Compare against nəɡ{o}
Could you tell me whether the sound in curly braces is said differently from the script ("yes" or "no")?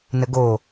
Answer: no